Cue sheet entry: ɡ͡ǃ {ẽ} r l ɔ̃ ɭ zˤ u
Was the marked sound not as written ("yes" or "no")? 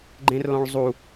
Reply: no